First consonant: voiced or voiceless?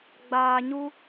voiced